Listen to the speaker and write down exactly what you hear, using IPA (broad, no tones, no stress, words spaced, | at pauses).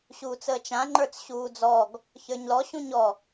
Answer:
ɕuːt͡səːt͡ʃã ŋ͡ǃə˞t͡sɕuːd͡zɔɡ | çə˞ɲlɔ ɕũɲɔ